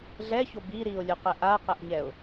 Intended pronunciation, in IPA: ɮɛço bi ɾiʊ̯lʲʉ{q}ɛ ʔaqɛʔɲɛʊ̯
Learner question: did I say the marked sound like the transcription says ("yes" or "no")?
yes